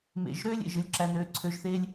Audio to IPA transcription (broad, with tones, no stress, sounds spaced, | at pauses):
m ḛ˨˩ ʒ ɾ øː˥ lʲ ḛ˨˩ ʒ ɯ˥˨ lʲ ǁ æ˧ n øː˨˥ ǀʰ ø˨˥ ʒ θ e˥ lʲ